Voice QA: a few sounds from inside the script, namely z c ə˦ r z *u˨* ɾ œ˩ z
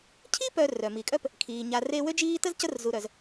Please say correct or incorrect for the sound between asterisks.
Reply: correct